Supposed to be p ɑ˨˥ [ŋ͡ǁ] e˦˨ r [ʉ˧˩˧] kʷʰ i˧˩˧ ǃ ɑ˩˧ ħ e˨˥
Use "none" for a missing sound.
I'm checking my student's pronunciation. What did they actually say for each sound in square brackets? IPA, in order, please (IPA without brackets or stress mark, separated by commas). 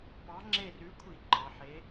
ŋ͡ǁ, ʉ˨˥